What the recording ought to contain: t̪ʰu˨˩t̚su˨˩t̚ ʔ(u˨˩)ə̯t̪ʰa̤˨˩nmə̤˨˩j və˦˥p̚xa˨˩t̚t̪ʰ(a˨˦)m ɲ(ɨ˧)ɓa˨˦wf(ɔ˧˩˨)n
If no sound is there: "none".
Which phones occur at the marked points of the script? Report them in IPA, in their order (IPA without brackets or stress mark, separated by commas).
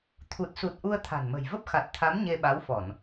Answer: u˧, a˨˦, e˧, ɔ˧˩˨